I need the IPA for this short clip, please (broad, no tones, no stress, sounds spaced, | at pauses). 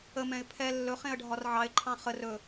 ə m ɛ̃ ɪ̯ pʰ ɛ lː ɵ χ ẽ ə̯ ɖʱ ɒ r ʕ ɑ ɪ̯ ǃʰ ɑ̃ χ ə r ɵ